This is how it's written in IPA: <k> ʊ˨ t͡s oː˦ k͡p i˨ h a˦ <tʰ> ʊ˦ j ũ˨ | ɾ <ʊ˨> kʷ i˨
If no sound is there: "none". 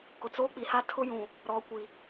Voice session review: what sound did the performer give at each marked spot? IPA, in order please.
k, tʰ, ɔ˨

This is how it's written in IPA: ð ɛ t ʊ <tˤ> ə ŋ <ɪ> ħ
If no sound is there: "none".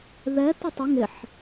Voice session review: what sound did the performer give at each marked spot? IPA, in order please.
tˤ, ɪ

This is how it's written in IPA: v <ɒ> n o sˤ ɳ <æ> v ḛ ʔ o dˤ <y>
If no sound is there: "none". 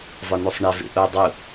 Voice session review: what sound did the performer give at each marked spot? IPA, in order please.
ɒ, æ, u

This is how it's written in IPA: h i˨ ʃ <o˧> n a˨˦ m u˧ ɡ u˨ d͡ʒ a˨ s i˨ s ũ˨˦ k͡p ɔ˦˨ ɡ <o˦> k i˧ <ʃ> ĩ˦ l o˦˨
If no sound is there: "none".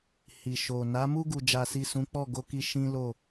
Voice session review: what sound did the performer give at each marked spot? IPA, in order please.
o˨, o˧, ʃ

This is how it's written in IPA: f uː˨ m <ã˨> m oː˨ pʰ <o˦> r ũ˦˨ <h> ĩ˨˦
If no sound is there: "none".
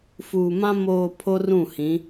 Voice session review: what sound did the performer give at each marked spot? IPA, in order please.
ã˦, o˦, h

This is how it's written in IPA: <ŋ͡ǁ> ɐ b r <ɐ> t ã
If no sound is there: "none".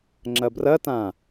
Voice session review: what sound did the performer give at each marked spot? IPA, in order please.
ŋ͡ǁ, ɐ

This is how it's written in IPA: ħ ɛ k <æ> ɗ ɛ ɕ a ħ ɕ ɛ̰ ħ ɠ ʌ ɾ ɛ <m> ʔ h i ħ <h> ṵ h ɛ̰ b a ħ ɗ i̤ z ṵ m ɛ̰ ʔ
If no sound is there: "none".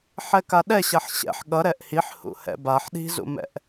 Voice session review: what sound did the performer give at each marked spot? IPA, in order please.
a, none, h

